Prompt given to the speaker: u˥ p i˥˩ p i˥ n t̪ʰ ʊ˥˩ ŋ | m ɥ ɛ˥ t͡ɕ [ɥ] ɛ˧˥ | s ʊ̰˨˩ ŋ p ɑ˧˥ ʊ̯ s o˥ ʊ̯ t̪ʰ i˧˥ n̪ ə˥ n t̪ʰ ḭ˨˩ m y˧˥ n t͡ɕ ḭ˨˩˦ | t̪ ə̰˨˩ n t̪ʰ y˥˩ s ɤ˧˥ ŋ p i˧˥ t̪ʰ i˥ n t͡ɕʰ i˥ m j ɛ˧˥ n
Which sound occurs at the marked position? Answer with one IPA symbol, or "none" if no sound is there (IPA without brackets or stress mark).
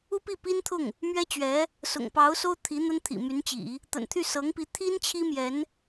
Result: ɥ